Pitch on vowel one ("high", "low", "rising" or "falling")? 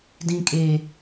high